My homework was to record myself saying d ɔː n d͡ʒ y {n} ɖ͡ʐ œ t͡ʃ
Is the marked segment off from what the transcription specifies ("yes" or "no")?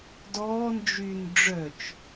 no